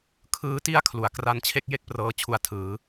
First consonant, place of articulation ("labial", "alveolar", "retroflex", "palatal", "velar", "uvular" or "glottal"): velar